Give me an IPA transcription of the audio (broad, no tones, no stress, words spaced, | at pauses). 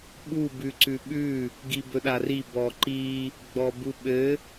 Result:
ɓu bʉǀʉɓʉ | ɡibɵɗari bɔǃi | ɡ͡bɔbuɓɘ